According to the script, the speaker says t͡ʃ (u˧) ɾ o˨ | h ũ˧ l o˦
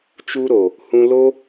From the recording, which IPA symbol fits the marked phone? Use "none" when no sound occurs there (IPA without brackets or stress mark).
u˧